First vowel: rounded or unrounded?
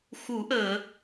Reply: rounded